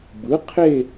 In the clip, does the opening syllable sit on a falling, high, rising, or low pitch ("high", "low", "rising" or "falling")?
rising